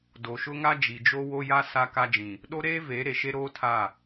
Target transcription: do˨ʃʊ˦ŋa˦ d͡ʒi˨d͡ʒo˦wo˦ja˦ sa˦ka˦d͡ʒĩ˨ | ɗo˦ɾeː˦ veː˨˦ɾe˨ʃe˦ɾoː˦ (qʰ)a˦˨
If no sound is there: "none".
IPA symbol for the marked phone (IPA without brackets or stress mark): tʰ